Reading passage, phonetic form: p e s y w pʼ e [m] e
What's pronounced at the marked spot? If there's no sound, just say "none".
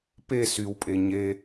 ɲ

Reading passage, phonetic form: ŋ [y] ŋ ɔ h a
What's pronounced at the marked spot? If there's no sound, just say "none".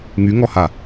y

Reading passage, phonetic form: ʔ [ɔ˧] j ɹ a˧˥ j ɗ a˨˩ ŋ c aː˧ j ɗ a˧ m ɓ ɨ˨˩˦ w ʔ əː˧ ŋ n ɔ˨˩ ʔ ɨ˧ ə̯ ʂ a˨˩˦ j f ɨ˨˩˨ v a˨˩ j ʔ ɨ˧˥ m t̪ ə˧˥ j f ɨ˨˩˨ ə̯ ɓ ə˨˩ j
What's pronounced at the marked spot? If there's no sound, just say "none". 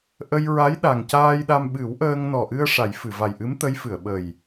ə˧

